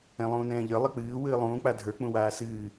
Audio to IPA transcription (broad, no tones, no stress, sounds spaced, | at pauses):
ɛ̃ lˠ ũː n ɛ̃ː ʎ ə˞ lˠ ɨ k͡p ɨː w ɨː lˠ ũː k͡p a dʱ ə˞ k͡p ũ w aː s ɨː